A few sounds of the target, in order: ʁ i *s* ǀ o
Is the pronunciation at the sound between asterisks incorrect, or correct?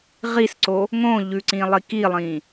correct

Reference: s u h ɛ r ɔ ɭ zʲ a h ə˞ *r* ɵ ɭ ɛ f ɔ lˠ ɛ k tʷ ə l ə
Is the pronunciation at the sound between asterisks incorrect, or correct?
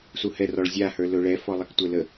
incorrect: l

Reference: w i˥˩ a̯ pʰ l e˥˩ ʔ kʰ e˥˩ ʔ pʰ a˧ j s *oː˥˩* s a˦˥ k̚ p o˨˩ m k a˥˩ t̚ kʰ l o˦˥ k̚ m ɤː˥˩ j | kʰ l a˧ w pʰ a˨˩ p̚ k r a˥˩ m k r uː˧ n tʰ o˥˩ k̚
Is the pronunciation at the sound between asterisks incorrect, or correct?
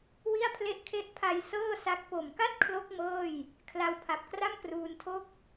incorrect: ɤː˥˩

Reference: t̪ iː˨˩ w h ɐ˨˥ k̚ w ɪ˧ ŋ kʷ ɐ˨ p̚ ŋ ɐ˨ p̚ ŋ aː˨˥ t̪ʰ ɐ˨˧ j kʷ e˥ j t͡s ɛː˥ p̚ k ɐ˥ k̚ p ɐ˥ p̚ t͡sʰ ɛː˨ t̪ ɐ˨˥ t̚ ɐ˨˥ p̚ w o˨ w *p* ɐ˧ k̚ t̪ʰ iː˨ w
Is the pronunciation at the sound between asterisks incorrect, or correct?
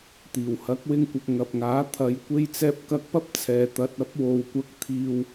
incorrect: kʷ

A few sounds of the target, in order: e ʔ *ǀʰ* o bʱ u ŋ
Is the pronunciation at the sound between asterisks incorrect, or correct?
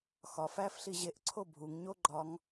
correct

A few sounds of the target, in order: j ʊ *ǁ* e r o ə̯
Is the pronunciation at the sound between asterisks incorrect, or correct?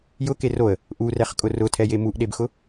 incorrect: k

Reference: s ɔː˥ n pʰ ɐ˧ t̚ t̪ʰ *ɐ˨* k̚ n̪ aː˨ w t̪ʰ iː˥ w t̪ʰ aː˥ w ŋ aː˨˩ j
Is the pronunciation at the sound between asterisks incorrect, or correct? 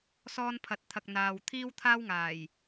incorrect: ɐ˧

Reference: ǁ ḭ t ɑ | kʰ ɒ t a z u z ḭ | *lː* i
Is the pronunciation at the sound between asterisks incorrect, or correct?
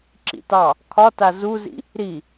incorrect: ɾ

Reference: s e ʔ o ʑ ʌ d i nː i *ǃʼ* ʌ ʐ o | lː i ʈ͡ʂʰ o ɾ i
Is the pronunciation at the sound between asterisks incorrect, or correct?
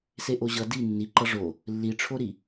incorrect: ǃ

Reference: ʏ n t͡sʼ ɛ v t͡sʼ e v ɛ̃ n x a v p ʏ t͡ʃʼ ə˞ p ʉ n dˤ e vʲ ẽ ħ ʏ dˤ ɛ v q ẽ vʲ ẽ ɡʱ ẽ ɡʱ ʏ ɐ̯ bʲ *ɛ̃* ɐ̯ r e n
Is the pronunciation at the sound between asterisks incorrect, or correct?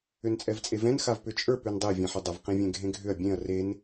incorrect: ẽ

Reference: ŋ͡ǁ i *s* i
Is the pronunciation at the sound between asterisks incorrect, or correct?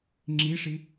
incorrect: ʂ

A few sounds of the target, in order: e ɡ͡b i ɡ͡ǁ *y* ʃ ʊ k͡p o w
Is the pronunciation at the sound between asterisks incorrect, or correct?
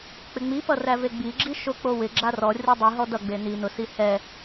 incorrect: i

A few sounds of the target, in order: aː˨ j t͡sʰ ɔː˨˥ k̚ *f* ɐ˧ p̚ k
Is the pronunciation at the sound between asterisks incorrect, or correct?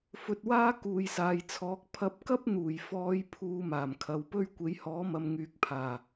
incorrect: pʰ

